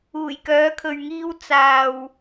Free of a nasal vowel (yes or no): yes